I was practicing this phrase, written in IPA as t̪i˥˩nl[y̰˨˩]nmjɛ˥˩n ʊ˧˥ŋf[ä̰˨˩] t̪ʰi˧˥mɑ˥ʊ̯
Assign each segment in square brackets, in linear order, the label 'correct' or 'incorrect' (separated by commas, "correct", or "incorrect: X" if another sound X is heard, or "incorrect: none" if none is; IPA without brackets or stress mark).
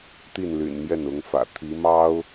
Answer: correct, correct